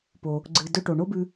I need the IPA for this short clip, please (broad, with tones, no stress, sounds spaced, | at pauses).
p o˩ | ɡ͡ǀ ɨ˩ d ɵ˧ ʈ o˩ ɳ o˥ b ʉ˧